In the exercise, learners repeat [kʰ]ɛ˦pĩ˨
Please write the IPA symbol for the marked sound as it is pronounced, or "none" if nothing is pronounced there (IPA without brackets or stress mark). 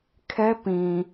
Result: kʰ